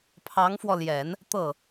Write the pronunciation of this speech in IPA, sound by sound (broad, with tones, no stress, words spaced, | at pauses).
pʰɑ˧˥ŋfwɔ˧ljɛ˨˩˦n | t̪ɤ˥˩